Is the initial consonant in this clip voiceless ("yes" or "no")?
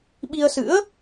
no